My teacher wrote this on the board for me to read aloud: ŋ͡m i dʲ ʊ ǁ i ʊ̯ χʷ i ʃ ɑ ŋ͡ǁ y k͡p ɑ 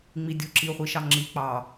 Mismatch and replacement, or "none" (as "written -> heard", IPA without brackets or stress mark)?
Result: y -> i